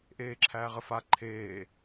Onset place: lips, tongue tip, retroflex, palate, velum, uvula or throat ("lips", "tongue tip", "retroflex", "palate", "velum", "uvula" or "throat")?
throat